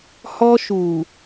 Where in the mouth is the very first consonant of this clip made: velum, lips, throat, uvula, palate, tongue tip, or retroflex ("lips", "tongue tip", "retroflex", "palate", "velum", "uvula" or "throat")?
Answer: throat